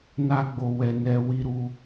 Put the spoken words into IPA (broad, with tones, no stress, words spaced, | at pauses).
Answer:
na˧ɡ͡bo˨wɛ˨ nɛ˧ wi˦ɾu˦